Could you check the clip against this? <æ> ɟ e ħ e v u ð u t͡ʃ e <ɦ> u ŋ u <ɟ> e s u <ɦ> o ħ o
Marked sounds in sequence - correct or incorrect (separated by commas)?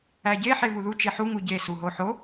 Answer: correct, incorrect, correct, correct